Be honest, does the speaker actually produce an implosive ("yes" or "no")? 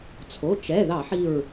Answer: no